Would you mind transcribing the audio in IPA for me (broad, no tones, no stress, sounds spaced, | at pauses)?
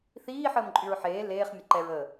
θ iː ħ əː m ǃʼ y ɹ ħ eː l eː χ mʲ ə ǃ ɛ ɹ əː